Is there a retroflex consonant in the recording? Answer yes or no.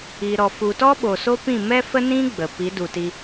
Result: no